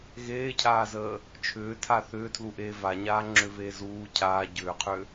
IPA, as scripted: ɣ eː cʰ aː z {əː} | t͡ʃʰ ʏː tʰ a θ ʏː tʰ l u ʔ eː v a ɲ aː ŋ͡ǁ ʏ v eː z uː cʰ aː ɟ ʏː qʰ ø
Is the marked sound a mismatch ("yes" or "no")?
no